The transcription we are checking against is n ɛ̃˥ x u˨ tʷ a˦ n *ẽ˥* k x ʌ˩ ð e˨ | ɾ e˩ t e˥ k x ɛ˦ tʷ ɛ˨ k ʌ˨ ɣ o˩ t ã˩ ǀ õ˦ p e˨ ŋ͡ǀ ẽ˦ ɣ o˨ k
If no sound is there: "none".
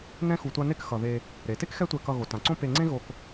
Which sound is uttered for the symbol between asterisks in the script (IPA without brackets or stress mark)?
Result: e˥